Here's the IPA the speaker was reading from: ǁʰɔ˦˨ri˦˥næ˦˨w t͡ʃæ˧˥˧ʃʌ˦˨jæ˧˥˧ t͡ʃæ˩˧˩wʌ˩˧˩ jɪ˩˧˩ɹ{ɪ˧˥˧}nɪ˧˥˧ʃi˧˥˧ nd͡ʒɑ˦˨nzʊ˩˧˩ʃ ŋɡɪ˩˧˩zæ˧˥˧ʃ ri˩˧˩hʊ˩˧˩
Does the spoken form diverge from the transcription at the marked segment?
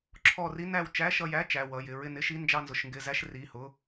yes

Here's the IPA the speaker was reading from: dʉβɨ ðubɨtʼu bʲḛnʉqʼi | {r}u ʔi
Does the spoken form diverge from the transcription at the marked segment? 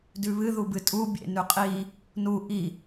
yes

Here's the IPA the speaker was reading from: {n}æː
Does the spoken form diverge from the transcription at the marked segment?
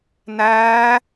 no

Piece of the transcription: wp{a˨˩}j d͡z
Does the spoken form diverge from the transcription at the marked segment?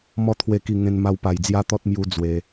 no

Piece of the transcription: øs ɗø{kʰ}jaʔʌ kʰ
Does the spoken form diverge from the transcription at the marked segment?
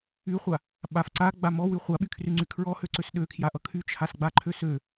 no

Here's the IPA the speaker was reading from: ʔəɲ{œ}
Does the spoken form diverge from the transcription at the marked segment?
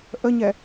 yes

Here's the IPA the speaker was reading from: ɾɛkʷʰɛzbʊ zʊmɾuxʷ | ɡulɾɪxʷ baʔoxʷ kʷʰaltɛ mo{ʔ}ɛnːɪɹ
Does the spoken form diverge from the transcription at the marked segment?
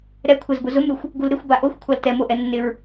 no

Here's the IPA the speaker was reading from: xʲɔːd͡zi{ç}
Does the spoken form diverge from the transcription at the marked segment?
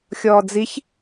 no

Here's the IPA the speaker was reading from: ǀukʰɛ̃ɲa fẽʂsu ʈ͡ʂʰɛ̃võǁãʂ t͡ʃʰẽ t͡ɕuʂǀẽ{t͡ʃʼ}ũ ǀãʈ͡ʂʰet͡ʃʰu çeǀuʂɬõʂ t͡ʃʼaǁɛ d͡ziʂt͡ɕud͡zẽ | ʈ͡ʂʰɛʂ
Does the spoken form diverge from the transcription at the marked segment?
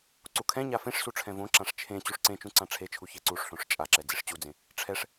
yes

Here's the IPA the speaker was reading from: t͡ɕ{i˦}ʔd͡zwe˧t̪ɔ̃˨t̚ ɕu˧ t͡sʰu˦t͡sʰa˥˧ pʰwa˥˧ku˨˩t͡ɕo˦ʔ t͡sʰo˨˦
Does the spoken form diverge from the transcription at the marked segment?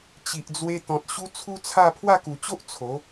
yes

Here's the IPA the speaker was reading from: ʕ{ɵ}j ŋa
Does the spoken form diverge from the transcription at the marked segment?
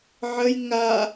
yes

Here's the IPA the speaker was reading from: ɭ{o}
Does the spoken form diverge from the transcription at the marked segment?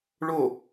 no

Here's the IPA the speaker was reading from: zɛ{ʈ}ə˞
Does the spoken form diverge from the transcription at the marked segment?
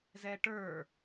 no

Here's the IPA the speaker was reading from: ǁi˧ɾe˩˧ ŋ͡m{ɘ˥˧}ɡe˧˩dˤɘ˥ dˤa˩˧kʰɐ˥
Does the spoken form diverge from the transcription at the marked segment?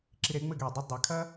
no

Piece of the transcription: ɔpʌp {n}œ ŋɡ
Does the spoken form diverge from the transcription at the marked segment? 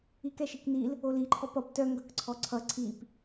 yes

